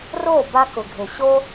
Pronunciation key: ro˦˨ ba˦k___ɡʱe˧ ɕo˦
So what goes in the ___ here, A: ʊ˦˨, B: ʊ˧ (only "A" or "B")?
B